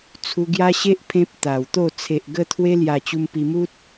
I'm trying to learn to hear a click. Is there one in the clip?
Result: no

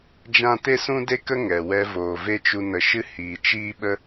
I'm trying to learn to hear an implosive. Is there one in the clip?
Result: yes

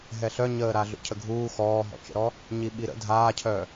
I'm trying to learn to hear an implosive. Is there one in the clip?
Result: yes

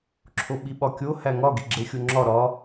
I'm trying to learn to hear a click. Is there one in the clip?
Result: yes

